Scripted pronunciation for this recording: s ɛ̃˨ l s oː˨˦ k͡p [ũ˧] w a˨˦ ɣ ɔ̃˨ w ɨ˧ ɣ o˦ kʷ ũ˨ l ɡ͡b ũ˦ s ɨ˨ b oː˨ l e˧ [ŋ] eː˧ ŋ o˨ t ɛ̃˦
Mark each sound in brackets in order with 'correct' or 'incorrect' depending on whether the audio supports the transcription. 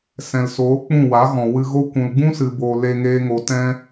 incorrect: ũ˦˨, correct

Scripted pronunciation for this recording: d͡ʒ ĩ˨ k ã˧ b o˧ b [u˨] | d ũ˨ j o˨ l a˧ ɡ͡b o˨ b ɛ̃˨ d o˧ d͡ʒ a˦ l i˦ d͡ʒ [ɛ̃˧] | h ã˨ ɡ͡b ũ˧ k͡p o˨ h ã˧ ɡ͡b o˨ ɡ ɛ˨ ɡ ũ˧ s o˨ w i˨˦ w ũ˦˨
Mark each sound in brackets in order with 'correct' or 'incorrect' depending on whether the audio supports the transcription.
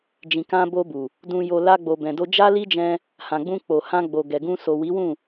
correct, correct

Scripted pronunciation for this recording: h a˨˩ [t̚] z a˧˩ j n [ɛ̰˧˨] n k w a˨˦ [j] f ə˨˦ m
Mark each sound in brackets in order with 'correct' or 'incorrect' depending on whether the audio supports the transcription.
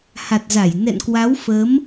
correct, correct, incorrect: w

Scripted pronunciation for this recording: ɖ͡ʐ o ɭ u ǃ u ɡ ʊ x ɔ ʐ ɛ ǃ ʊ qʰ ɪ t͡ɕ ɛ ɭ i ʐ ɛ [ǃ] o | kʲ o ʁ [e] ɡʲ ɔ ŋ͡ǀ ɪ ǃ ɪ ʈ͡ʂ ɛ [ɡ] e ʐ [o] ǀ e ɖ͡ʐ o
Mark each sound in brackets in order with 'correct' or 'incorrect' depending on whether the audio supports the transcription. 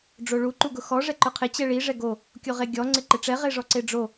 incorrect: ɡ, correct, incorrect: ʁ, incorrect: ɔ

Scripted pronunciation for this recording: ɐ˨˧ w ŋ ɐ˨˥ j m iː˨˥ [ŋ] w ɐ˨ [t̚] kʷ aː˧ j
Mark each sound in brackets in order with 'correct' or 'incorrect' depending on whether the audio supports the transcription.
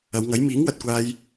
correct, correct

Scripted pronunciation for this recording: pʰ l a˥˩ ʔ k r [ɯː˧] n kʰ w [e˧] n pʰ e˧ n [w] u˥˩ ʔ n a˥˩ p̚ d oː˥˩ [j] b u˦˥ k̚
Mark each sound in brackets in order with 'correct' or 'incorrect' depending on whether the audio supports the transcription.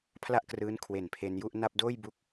incorrect: ɯː˦˥, incorrect: e˨˩, incorrect: j, correct

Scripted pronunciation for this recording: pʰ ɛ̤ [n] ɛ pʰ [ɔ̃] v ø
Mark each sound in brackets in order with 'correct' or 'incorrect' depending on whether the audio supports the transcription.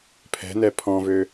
correct, correct

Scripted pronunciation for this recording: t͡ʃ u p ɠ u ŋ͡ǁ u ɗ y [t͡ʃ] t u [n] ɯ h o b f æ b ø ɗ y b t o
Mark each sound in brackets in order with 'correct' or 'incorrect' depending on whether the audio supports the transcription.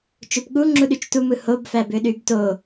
correct, incorrect: m

